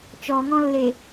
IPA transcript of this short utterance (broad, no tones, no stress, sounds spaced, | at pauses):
t͡ʃ ɔ ŋ ɔ̃ lː e